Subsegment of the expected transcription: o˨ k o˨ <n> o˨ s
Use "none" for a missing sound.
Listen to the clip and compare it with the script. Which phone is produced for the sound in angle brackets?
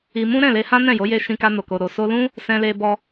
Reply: ɾ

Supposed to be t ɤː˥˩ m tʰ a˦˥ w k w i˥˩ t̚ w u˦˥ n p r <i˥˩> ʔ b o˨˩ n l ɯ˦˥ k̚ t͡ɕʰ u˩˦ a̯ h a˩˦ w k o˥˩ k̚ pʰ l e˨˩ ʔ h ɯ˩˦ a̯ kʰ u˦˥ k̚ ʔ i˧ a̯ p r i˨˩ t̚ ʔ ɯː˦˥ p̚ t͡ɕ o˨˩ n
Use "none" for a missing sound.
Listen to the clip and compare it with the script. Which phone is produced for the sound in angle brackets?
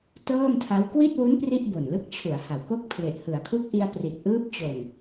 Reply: i˥˩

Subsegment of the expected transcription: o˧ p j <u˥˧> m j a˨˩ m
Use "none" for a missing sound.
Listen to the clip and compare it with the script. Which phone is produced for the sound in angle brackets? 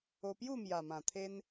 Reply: u˥˧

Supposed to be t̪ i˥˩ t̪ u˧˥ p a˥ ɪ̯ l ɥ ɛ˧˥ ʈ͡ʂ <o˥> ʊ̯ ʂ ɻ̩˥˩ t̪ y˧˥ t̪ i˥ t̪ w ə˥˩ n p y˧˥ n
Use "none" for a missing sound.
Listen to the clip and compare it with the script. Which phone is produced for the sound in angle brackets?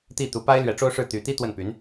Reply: o˥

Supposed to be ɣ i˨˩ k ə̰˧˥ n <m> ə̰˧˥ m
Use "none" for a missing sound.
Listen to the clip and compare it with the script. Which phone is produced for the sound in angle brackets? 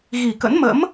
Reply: m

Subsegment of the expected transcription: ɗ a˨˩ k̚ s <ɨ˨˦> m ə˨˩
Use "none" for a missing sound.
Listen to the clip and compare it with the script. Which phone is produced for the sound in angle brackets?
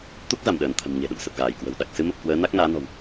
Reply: ɨ˨˦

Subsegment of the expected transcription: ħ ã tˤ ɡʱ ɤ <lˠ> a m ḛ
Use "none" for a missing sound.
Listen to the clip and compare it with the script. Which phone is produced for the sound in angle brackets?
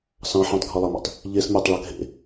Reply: lˠ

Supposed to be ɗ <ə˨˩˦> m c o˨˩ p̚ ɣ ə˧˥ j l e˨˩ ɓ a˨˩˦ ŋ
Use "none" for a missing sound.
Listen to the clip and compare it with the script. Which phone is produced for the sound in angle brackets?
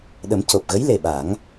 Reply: ə˨˩˦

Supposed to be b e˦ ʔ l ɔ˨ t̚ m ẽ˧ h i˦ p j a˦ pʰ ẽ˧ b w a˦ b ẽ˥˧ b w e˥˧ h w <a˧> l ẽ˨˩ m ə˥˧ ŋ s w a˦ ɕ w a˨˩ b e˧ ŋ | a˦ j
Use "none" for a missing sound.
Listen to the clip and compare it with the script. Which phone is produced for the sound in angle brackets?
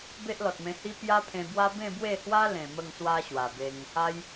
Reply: a˦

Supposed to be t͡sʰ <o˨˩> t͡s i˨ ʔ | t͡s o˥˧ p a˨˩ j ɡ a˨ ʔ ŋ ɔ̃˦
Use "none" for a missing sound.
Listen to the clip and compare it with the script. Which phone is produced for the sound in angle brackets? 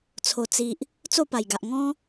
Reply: o˨˩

